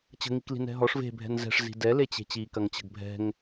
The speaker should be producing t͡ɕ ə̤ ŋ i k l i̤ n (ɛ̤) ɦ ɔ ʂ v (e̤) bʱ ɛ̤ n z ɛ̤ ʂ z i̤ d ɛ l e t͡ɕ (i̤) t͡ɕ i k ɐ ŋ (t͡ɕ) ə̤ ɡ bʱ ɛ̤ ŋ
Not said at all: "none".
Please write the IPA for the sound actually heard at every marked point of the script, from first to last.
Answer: ɛ̤, e̤, e̤, t͡ɕ

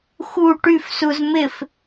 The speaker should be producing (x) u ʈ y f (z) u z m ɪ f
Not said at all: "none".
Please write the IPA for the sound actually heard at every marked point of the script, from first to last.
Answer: x, s

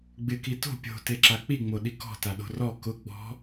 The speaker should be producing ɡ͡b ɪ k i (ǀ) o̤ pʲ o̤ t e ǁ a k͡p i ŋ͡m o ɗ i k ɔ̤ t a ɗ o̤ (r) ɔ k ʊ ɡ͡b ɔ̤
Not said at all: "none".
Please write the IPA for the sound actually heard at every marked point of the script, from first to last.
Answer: t, r

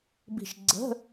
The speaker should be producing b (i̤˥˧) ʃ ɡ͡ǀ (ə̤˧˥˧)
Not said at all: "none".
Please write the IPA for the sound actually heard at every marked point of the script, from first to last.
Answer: i̤˥˧, ə̤˧˥˧

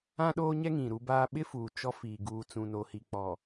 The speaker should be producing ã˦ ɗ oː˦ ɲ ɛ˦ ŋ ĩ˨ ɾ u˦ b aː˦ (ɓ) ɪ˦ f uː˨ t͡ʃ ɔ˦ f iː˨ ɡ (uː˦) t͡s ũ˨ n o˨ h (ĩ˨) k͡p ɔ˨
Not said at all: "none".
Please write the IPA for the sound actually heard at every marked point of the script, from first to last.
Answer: ɓ, uː˨, i˨

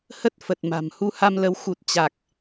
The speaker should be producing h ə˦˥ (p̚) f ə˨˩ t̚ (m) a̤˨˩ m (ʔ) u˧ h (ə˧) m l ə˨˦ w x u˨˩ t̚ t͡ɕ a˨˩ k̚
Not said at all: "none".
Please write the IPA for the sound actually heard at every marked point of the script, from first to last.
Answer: t̚, m, h, a˧

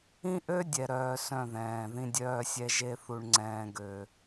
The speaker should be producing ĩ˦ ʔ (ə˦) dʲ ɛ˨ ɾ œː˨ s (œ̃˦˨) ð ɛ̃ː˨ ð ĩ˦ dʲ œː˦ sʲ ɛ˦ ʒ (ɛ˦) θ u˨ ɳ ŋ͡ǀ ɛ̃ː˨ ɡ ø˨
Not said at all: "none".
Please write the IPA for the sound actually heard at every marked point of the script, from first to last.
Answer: ø˦, œ̃˦˨, e˦

